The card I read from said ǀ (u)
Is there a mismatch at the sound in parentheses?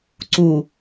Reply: no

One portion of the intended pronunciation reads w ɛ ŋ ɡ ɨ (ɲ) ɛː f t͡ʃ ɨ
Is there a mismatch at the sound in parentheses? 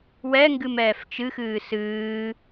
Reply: yes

